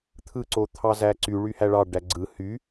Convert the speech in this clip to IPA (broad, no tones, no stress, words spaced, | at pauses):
t̪ʰɯǀot̪ʰɑzæ ǀy ɭyhæɭɑ ɖæɡ͡ǀɯ hy